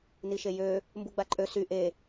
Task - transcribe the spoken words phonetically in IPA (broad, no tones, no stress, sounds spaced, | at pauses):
n i ʃ e j ø | m b u ɡ͡b a ǃʼ ø s y ʔ e